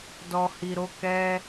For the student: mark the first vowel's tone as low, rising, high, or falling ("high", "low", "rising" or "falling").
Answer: low